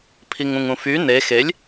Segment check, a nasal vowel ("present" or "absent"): present